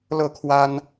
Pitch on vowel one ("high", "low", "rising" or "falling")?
falling